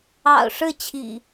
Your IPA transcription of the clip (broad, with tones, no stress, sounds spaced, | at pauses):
ɑ̰˨˩ ʊ̯ ʂ ɻ̩˥˨ t͡ɕʰ ḭ˨˩